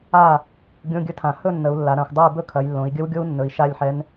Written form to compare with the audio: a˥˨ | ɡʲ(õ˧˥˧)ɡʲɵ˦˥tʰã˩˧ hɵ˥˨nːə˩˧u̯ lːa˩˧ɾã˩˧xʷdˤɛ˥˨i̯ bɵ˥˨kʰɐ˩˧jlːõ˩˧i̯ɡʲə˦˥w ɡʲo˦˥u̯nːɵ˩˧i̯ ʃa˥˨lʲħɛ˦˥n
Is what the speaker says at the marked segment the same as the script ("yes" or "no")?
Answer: yes